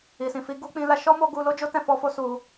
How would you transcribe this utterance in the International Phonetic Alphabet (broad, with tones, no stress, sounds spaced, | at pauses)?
i˨ s ĩ˨ f i˧ ɡ u˦ k͡p ĩ˧ l a˦ ʃ ɔ˦ m o˧ ɡ u˧ l o˦ d͡ʒ o˦ t ɛ̃˧ f ɔ˦ f o˦ s u˧